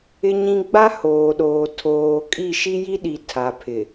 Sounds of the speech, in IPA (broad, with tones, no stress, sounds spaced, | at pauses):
ɪ˦ ɲ ĩ˦ ɡ͡b a˦ h oː˨ ɗ oː˨ tʰ oː˨ kʼ i˦˨ ʃ i˦ j i˦ ɗ i˨ tʰ a˨ pʰ ɪ˨